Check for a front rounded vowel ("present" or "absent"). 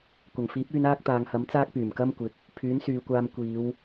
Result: present